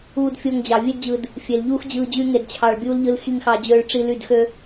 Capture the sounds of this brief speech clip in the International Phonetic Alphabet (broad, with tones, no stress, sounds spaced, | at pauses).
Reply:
uː˧ d fʲ o˧ ŋ d͡ʑ ɑ˨ vʲ e˦ d d͡ʑ ɯ˧ d | fʲ e˨ l ʎ uː˦ x d͡ʑ ɯː˧ d͡ʑ y˦ ŋ e˧ d t͡ɕʰ ɑ˧ ɭ bʲ uː˦ l ʎ ɯ˦ l x i˧ ŋ x ɑ˧ d͡ʑ øː˧ ɭ ʈ͡ʂ i˧ l y˦˨ d x ø˦